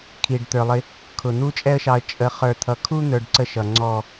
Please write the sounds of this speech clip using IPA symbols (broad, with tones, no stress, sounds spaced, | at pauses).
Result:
kʰ i˨ ɖ t̪ ə˞˨ lˠ ɪ˧ | kʰ ʊ˨ n̪ u˦ t͡ʃʼ ɛ˦ ə̯ ʃ ɑ˧ ə̯ t͡ʃʼ ə˧ χ ə˞˨ t̪ʰ ʌ˨ kʰ u˦ n̪ ə˞˧ ɖ ǀ ə˦˨ ʃ ʌ˨ ŋ͡ǀ ɔ˨